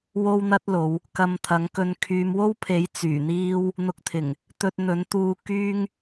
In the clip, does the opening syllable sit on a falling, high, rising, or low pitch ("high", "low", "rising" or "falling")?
high